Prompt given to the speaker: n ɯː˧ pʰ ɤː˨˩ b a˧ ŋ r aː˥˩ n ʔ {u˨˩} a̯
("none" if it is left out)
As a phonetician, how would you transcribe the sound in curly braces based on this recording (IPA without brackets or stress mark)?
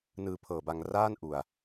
u˨˩